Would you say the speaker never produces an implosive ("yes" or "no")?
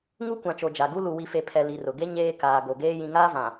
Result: yes